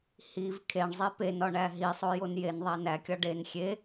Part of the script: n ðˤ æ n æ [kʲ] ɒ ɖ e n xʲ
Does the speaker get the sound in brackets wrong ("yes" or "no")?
no